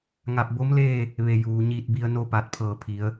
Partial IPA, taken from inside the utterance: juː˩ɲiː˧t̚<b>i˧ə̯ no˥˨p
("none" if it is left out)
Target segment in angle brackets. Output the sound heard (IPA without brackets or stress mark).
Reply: b